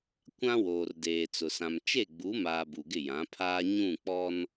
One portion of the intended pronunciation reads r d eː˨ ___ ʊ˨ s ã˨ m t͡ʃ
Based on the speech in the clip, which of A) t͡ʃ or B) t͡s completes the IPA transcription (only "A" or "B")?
B